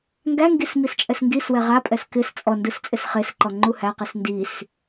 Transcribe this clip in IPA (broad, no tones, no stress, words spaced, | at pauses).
ŋɡæŋɡis mist͡ʃʼɛsŋɡiswɛ ʁapʼɛs kɪs t͡sʼɔ ndɯst͡sʼɪsχesǃɔ ŋ͡ǃuhæqis ndis